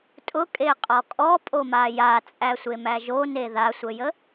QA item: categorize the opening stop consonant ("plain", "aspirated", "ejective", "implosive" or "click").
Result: ejective